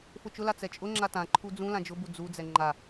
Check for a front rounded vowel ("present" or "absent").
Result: absent